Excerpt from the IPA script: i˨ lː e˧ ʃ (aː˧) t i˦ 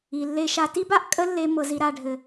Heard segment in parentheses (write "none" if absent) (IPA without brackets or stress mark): a˧